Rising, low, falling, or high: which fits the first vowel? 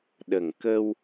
low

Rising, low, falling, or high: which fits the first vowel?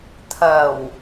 low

